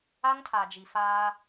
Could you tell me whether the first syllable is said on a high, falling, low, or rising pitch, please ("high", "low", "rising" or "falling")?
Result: high